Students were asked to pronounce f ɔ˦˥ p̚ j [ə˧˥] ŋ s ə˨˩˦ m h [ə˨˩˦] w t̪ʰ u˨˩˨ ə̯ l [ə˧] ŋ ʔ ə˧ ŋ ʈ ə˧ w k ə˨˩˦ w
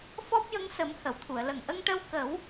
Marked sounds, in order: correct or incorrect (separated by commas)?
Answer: correct, incorrect, incorrect